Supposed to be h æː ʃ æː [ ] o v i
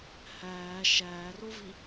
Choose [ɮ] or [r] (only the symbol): r